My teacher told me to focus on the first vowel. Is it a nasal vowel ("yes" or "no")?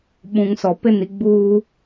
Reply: yes